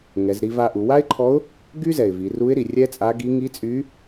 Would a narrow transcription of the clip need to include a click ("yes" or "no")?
yes